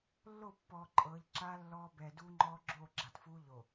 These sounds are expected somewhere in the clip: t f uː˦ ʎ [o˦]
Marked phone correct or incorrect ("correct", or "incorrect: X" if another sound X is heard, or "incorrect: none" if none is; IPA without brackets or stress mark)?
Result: incorrect: o˨